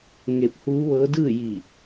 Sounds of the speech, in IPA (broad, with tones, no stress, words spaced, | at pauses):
ŋe˧p̚huː˧˥ʋɤː˧˥ dɯː˥˨ji˧˩